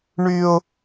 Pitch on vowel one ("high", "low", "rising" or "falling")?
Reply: high